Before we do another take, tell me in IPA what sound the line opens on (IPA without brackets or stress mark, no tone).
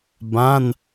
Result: b